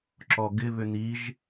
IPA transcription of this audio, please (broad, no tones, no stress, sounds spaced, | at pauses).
ǁ ɔ ɡ ɪ β ʏ n i ʒ